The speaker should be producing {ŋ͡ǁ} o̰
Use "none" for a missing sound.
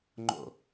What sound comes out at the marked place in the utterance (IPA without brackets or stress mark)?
ŋ͡ǃ